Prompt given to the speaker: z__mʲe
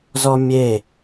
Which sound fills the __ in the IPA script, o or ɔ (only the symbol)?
ɔ